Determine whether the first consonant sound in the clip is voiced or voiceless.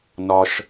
voiced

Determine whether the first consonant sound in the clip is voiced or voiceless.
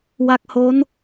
voiced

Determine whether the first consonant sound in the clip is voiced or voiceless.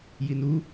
voiced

